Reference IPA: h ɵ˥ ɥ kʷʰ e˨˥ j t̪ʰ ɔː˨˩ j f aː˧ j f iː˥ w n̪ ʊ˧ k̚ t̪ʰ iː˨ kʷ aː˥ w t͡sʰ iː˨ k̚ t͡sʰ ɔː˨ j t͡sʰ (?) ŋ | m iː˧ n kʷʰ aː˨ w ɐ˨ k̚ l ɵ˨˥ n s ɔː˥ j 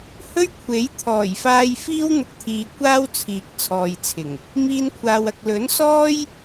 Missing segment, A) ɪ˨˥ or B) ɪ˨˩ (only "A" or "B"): B